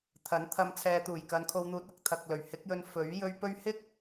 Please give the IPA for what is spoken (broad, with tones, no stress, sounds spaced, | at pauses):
t̪ʰ ɐ˨˥ n t̪ʰ ɐ˧ m t͡sʰ ɛː˨˧ t̪ uː˨˩ j k ɐ˨˧ n kʰ o˧ w n̪ uː˨˥ t̚ ɐ˧ k̚ t̪ʰ ɐ˨ k̚ l ɵ˨˩ ɥ h ɪ˨˥ k̚ j ɵ˧ n f ɵ˨˥ ɥ j ɵ˥ ɥ p ɵ˥ ɥ h ɪ˥ k̚